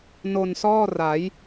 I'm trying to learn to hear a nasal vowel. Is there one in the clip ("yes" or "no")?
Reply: no